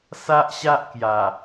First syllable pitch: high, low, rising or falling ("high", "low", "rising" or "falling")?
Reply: high